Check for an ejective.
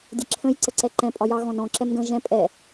present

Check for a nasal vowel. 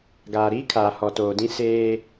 present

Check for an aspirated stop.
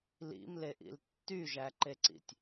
absent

